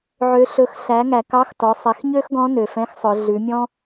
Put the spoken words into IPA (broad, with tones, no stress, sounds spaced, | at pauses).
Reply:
ʕ ø˩˧ ɬ ɵ˩˧ x ɬ æ˩˧ ŋ æ˩ k ɑ˧˥ x t ɔ˩˧ sˤ ɛ˩˧ x ɲ ø˥ x ɡ ɔ̃˧˥ n ø˩ f ɛ̃˧˥ x sˤ œ˩˧ ɮ ʉ˩˧ mʲ ɔ̃˥